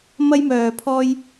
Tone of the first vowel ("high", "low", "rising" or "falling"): high